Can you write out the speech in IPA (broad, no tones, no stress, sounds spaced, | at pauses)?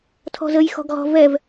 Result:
tʰ ɔ̤ z ə j x ɔ̤ ɡ ʁ ɔ̤ v ɛ v